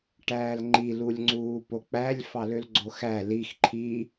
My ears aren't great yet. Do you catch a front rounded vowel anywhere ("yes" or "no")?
yes